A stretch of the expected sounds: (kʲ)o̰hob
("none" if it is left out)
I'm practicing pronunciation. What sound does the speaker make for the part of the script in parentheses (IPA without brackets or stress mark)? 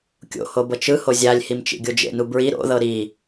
kʲ